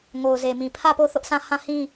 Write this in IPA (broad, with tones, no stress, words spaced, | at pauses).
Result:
ŋo˨ʊ̯ze˨mĩ˨ pʰä˦˨po˦˨θʊ˦ʔsʰã˦˨ hã˦˨hĩ˦